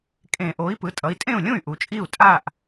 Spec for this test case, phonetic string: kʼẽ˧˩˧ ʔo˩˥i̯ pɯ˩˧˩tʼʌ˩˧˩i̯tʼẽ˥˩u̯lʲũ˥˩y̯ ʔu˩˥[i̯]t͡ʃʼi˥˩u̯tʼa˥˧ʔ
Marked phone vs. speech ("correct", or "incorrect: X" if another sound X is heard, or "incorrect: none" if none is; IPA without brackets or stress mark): incorrect: none